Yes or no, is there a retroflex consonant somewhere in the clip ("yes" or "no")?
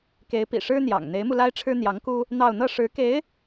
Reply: yes